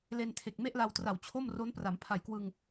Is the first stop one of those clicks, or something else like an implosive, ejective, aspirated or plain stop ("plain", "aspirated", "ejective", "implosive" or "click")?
aspirated